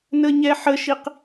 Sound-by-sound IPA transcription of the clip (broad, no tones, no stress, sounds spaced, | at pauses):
n ə ɲ ɛ ħ ə ʃ i q